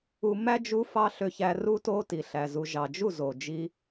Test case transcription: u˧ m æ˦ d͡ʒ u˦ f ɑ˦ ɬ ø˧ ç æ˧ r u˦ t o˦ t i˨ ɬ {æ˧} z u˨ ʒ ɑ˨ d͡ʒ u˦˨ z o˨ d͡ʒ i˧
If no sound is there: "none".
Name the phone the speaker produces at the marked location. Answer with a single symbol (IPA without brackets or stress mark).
æ˨